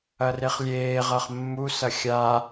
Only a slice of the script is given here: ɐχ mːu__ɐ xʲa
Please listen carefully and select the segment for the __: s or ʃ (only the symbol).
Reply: s